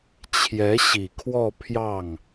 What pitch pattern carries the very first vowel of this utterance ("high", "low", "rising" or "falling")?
rising